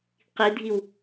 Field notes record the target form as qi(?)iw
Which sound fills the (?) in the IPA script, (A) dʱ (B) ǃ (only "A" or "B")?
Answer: A